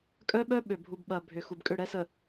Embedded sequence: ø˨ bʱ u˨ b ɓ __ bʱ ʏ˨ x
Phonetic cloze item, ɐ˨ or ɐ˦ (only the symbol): ɐ˨